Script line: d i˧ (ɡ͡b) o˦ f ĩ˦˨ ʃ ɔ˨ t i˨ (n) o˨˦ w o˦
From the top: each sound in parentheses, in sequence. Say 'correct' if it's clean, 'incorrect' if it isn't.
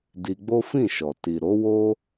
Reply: correct, incorrect

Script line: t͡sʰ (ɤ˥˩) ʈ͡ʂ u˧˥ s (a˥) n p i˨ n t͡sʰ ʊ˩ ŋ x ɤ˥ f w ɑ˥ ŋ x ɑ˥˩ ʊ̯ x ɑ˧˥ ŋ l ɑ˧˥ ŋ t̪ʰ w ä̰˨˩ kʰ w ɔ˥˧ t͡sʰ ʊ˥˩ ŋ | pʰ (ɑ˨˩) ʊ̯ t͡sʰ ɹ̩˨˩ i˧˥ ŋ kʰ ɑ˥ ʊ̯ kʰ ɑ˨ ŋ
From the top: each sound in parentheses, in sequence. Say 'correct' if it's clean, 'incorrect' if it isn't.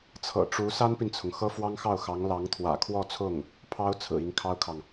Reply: incorrect, correct, incorrect

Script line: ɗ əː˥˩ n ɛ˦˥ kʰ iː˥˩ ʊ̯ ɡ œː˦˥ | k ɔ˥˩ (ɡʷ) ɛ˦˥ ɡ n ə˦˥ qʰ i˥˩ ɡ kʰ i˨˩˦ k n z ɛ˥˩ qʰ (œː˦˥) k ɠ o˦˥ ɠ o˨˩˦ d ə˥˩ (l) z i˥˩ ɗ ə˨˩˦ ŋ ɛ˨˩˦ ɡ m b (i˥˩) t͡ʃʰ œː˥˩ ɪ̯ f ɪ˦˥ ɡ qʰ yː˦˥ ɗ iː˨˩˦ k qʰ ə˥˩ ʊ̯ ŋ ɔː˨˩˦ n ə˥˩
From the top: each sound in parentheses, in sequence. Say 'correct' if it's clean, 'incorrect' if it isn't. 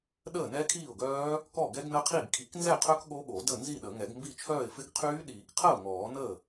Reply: incorrect, incorrect, incorrect, correct

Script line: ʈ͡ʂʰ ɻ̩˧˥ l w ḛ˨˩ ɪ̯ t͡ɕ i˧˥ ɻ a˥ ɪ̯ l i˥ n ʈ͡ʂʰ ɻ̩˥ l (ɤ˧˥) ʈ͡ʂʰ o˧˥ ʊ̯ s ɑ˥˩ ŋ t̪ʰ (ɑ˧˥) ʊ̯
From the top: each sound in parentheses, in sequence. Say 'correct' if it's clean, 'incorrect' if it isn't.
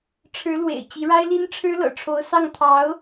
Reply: incorrect, correct

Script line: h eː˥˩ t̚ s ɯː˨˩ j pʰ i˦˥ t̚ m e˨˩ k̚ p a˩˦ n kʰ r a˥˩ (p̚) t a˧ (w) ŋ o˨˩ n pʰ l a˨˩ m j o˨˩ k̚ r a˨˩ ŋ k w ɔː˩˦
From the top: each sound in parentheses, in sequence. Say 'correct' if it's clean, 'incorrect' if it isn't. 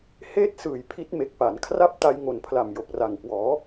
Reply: correct, incorrect

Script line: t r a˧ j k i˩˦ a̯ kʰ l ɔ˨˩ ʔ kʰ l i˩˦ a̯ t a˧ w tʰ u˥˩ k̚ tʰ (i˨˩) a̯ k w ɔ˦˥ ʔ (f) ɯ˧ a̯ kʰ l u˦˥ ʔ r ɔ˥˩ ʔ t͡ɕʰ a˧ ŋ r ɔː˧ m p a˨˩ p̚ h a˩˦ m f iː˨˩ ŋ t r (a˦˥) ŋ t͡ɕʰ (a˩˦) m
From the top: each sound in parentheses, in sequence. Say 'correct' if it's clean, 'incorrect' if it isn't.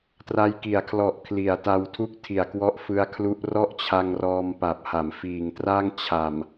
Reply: correct, correct, incorrect, incorrect

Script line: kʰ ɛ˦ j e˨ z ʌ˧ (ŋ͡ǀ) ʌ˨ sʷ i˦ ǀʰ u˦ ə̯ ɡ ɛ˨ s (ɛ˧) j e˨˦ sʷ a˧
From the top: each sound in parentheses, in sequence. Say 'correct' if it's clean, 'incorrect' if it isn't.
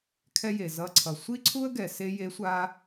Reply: incorrect, incorrect

